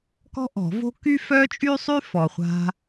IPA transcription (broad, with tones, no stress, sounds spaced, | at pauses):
k ɔ̤˥ ʔ ɔ̤˨˩˦ v o̤˥ k y˥ f œ˥ t͡ʃʼ y˥ sˤ y˥ f ɔ˨ χʷ a̤˥